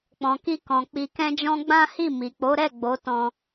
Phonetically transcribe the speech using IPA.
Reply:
k͡p ɔ̃˨ k i˧ k ɔ̃˨ k͡p i˧ k ɛ̃˦ d͡ʒ ɔ̃˦ ɡ͡b ã˦ h i˦˨ m i˨ k͡p o˨˦ ɾ ɛ˦˨ ɡ͡b o˨˦ t ɔ̃˧

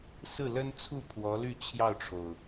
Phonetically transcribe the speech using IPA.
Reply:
s ɹ̩˥˩ l ə˥ n t͡sʰ u˥˩ pʰ w ɔ˧˥ l y˥˧ t͡ɕʰ j ɑ˥˩ ʊ̯ ʈ͡ʂʰ o˩ ʊ̯

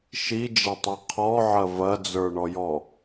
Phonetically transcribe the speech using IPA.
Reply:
ʃ i d͡ʒ ɐ tˤ i qʰ ɔ ʕ ɐ v ɐ d͡z ə˞ ɳ ɔ j ɔ

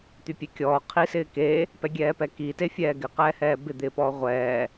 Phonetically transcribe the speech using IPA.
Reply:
t̪ y pʲ e kʲ ɔː qʰ i s ɪː k e | p ɛ ɡʲ ɛː p ɛ k i t e fʲ ɛː ɡ ɪ q ɛː h ɛː b ɪ d̪ ɪː p ɔː ʁʷ ɛː

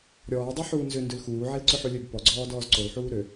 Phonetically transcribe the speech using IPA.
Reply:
ɾʲ ɔː dˤ o ħ uː n z ʏ n d ø l x uː ʕ e l ǀ ʏ ħ u lʲ ø b p ɔ ɡ͡ǀ ɔː d ɔː z ǀ o l ħ uː ɾ ø

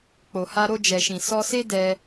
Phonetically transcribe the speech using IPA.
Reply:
k͡p o˨ h a˧ ɾ o˧ d͡ʒ ɛ˨ ʃ ĩ˨ s ɔ˧ s e˦ d ɛ˧

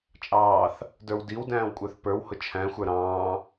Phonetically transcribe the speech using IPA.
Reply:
t͡ʃʼ ɑː θ | d ə˞ w d i w d æ̃ː w kʷʼ ə˞ θ p ə˞ w h ʊ t͡ʃʰ æ̃ xʷ ə˞ ɾ ɑ̃ː

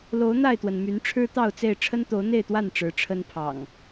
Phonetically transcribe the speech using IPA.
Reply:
l o˨˦ ʊ̯ n̪ a˥˨ ɪ̯ t̪ w ə˩ n m y˨˦ n ʈ͡ʂʰ ɻ̩˦ t̪ ɑ˥˨ ʊ̯ t͡s e˥˨ ɪ̯ ʈ͡ʂʰ ə˦ n t̪ o˨˦ ʊ̯ n̪ e˥˨ ɪ̯ t̪ w a˥˨ n ʈ͡ʂ ɻ̩˨˦ ʈ͡ʂʰ ə˦ n pʰ ɑ̰˨˩ ŋ

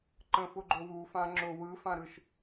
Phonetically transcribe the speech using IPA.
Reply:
ǃ ə̃ f ʊ ɡ͡ǃ ʊ w u f ã ŋ͡ǁ ʊ w ɯ f ã ɾ ɯ ʃ

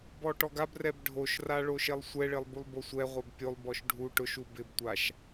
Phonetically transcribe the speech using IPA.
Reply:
b ɔ ʈ ɔ ɡ a b r ɛ b ɖʱ o ʃ r a ɭ o ʃ e lˠ sʷ ɛ ɭ ɪ lˠ b u lˠ b o sʷ ɛ ʁʷ ɛ b pʲ o lˠ b ɔ ʃ ɖʱ u ʈ ʊ ʃ u b ɪ b tʷ a ʃ

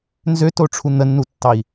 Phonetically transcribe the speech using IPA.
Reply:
n z ø t o ʈ͡ʂʰ u n̪ ə nː u tː ɑ i̯

